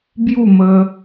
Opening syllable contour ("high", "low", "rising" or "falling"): falling